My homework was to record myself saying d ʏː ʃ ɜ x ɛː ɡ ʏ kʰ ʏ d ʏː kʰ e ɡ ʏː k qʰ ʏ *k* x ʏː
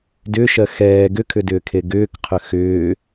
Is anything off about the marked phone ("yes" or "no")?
yes